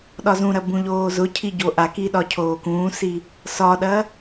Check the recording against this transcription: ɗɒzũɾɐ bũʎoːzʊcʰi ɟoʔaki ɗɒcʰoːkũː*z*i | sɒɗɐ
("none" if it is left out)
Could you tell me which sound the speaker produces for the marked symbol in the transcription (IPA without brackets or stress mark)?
s